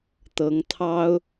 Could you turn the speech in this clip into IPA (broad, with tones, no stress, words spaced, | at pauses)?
t̪ɤ˨˦ŋt̪ʰɑ˦ʊ̯